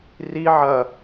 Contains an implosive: no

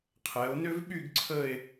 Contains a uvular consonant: yes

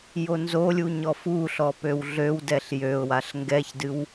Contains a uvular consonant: no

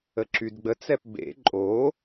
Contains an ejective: yes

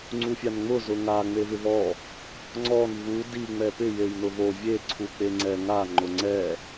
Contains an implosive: no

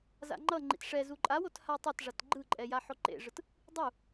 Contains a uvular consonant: no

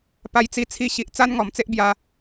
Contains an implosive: no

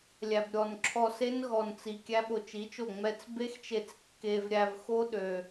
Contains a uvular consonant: no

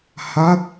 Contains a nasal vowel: no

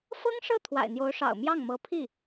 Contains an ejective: no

